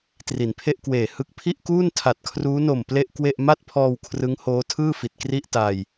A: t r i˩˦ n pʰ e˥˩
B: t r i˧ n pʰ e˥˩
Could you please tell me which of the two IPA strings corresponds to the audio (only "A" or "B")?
A